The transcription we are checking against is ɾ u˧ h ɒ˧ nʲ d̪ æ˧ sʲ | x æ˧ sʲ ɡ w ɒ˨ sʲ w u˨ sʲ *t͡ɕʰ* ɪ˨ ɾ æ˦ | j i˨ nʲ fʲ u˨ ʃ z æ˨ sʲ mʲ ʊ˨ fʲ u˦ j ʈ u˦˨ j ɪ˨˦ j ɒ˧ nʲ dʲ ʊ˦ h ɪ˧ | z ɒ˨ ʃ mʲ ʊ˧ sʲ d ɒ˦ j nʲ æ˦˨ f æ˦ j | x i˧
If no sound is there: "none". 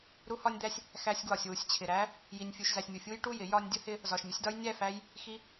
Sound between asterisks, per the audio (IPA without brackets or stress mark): t͡ɕʰ